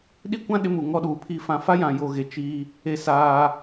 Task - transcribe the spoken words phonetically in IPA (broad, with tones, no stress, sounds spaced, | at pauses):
ɗ i˦ kʷ ã˦ ɗ ɪ˦ m u˨ ŋ ɔ˦ ɗ uː˨ pʰ i˦ f ã˦ f a˦ j ã˨ j o˨ ɣ e˨ t͡ʃ iː˦ | e˦ s aː˦